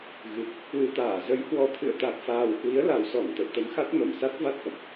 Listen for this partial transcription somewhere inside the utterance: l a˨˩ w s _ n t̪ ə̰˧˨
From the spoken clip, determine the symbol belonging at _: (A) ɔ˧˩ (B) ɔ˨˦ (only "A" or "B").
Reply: A